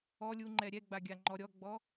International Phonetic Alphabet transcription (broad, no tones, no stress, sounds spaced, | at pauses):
ɔ lʲ u ŋ͡ǃ ɛ ɾʲ ɛ ɡ͡b a ɡʲ a ŋ͡ǃ ɔ ɾʲ ɔ ɡ͡b ɔ